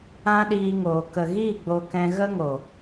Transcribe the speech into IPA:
ã˦ɗiː˧ŋoː˨ kə˨ɣi˦˨ ɡ͡bo˧kɛ̃˧ɣə˦ŋo˨

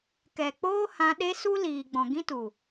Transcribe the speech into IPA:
kɛ˨k͡poː˦hã˧ ɗe˦ su˦liː˨ɡ͡bɔ̃˨ ɡĩ˦tu˨

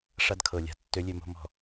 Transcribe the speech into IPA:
ʂa˦dkʰɤ˨lʲa̤˨ tːø˨˦lʲø˨mo̤˨ mɔ̤˨

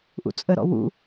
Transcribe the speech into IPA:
ʔṵt͡sʼəɾɔ̰ wṵ

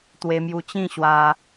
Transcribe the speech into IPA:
t̪we˧mju˧t͡ɕĩ˥˧ ɕwa˧

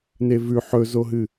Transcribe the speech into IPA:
nevʉ ħɵzoɦɨ

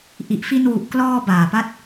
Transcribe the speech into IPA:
ʔi˨˩ʔfi˧nwu˨˩ʔklɔː˧ baː˨˩pa˥˩t̚

